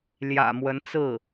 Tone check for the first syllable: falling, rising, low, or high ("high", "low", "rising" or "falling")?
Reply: low